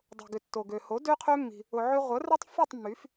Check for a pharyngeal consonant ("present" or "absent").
present